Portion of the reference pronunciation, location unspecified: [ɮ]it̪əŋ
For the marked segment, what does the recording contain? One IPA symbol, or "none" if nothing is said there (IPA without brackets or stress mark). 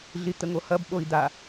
ɮ